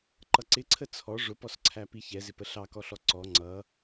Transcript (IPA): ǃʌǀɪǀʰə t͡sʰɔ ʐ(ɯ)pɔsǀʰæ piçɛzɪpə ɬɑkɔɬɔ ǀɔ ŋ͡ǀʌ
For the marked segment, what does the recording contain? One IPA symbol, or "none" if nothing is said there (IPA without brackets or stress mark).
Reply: ʊ